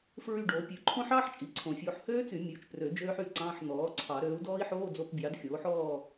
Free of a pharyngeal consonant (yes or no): no